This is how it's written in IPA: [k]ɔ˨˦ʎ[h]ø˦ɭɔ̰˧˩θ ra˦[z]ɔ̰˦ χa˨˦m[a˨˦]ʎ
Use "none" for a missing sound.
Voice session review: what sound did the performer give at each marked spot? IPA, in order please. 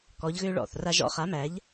k, ɣ, ʒ, æ˨˦

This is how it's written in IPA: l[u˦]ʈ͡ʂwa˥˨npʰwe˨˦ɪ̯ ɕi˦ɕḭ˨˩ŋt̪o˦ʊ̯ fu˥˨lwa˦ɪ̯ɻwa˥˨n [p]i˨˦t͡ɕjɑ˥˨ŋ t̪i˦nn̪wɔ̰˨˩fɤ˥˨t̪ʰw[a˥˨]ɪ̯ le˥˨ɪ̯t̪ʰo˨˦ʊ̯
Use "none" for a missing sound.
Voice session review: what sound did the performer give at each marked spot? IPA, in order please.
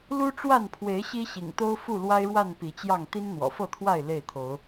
u˦, p, a˥˨

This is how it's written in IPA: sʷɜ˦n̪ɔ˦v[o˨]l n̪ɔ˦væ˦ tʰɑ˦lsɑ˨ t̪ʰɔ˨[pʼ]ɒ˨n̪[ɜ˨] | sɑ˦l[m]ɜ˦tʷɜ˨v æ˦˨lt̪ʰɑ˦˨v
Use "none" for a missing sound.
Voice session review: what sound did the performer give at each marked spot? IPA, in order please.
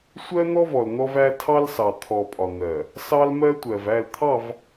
ɔ˨, pʼ, ɜ˨, m

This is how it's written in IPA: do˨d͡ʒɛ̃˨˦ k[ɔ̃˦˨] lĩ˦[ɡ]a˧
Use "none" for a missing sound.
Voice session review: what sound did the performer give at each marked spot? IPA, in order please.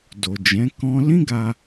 ɔ̃˦, ɡ

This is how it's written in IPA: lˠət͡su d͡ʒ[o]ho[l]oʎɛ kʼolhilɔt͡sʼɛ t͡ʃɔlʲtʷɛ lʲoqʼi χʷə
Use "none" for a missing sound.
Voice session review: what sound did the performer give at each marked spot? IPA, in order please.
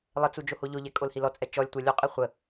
o, ʎ

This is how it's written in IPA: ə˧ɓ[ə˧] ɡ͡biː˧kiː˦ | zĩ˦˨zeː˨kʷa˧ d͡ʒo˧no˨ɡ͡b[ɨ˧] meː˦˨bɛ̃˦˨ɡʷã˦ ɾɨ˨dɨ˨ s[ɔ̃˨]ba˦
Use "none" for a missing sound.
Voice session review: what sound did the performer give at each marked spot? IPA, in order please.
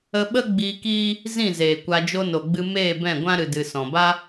ə˦, ɨ˧, ɔ̃˨

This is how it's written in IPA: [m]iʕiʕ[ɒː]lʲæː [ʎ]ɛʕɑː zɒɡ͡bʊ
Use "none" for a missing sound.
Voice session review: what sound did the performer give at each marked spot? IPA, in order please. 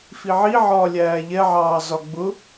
f, ɒː, ʎ

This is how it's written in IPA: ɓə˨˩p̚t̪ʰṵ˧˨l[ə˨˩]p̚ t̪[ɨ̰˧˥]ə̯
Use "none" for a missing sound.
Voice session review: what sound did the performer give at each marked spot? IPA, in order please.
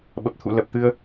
ə˨˩, ɨ˧

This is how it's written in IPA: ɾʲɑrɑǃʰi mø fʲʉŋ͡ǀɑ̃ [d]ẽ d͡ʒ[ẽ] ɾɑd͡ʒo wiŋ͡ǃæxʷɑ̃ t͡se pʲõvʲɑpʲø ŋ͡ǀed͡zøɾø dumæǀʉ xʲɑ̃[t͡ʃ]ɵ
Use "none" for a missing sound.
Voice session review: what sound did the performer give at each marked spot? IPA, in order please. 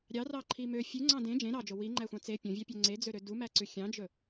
d, ẽ, d͡ʒ

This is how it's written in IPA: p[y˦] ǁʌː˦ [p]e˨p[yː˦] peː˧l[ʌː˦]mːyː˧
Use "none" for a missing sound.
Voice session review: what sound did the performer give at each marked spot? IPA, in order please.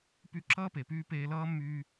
y˦, p, yː˦, ʌː˦

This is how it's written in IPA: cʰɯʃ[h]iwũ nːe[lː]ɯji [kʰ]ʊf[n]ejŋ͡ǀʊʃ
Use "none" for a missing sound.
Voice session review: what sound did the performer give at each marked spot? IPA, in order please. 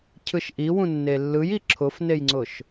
ʔ, lː, ǁʰ, n

